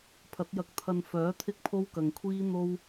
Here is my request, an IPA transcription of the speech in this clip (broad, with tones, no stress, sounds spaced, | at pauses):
pʰ ɐ˨˥ t̚ j ɐ˧ k̚ t̪ʰ ɐ˧ n f œː˨˥ t̪ʰ ɪ˥ k̚ pʰ o˥ w k ɐ˨ ŋ kʷʰ iː˥ n̪ o˥ w